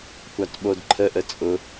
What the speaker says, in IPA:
kʷ a t ɓ o d ǃʰ ə ʔ ə t͡sʼ ʊ

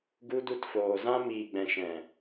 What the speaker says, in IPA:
ɡ u˧ d u˧ t f oː˨ z ã˦ m iː˨ ɡ͡b ɛ̃˨ ʃ ɛ̃˨

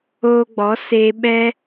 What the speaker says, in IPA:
oː˧ ɡ͡b ɔ˨˦ s eː˧ ɓ ɛ˦

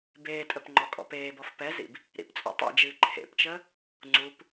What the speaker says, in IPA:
b eː tʼ ə p ŋ͡ǃ ɔ kʼ ɔ̰ p eː b ɔ f p ɛ z ḭ b | ɾ ḭ p t͡sʼ ṵ tˤ ḛ d͡ʒ ɨː ǃʰ ḛ p t͡ʃ ə | ŋ͡ǀ u p

